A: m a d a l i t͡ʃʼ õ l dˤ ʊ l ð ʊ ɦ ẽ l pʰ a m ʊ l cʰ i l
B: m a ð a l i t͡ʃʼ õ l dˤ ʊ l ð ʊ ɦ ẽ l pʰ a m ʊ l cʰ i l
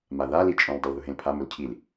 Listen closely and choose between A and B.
B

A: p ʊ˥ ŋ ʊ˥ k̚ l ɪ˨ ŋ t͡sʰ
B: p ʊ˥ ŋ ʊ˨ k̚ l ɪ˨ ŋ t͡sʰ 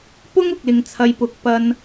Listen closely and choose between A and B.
B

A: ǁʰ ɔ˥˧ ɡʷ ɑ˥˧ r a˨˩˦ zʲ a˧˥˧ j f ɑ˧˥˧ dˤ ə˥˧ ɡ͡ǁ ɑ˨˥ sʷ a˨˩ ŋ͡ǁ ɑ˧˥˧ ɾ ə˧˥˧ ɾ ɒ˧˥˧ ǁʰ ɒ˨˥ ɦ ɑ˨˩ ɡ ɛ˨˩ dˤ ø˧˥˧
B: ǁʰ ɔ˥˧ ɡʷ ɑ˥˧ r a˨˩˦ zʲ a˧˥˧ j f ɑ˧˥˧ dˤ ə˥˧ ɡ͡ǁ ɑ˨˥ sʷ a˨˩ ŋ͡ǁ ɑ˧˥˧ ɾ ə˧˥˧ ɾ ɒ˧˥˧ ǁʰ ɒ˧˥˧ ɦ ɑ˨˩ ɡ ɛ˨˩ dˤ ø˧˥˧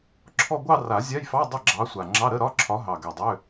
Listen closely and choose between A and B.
A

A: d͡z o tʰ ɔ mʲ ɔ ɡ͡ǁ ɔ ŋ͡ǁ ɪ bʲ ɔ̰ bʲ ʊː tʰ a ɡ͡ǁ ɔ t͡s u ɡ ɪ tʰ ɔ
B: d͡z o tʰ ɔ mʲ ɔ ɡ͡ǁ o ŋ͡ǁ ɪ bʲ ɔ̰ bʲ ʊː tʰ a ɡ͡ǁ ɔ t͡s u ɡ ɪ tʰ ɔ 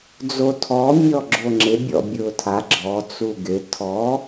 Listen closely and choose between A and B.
B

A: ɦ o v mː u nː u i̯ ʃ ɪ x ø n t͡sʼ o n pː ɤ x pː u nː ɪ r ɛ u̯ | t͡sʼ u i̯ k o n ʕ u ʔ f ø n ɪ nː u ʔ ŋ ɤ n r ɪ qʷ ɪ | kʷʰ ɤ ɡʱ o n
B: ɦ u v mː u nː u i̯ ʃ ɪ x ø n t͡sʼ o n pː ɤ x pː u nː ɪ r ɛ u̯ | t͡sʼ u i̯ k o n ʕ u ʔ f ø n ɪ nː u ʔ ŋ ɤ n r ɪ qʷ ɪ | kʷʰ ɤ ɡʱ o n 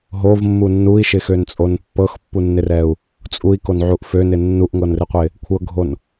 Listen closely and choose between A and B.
A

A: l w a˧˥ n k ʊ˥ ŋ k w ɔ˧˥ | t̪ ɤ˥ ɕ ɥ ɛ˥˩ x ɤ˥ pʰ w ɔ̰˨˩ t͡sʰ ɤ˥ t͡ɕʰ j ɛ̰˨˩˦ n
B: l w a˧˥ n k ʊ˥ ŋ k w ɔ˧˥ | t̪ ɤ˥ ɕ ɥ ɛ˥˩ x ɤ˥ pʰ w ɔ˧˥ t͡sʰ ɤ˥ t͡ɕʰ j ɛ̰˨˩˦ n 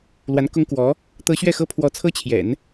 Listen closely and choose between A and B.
B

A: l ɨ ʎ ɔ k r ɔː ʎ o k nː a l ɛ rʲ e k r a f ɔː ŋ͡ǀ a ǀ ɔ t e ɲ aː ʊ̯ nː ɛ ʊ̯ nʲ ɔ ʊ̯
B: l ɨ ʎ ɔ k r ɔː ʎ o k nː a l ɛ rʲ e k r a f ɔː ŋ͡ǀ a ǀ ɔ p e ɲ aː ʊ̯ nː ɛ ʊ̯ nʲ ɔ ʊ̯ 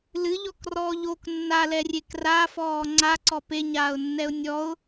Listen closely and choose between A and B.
B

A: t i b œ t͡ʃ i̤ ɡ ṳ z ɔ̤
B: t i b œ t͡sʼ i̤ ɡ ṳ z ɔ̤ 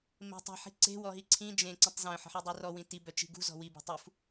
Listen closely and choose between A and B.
A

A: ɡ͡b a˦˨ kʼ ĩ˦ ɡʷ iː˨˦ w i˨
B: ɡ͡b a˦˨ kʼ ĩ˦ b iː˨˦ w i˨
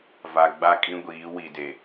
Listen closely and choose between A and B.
A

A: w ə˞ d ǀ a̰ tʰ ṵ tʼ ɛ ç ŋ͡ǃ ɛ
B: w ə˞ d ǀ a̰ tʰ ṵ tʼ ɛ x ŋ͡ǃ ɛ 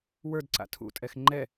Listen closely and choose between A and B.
B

